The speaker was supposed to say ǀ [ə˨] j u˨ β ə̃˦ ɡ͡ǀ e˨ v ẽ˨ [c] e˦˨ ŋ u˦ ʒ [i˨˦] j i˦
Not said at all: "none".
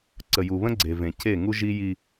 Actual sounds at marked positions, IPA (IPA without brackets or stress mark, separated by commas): ə˨, c, i˦